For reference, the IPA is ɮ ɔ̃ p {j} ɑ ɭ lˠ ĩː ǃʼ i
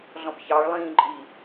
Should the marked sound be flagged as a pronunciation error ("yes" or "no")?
yes